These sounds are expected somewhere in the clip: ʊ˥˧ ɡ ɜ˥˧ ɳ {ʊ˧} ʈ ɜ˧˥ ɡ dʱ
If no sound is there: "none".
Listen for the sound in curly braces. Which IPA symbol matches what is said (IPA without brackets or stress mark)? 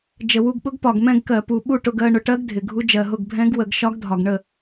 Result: ʊ˧